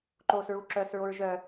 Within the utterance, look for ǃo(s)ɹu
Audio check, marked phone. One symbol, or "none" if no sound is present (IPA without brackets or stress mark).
s